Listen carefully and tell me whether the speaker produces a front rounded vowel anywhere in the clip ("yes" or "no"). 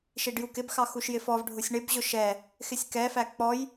no